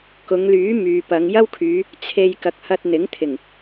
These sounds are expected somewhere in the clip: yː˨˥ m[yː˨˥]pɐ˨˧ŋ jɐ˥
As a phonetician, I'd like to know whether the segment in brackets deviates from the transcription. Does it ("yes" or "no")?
yes